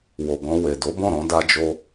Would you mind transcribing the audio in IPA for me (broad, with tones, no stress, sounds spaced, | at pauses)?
w o˨ ɡ ɔ̃˧ w e˨ d o˨˦ b ɔ̃˦˨ ɾ ɔ̃˧ d a˦ d͡ʒ o˦